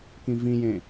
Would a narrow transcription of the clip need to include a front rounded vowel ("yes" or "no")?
no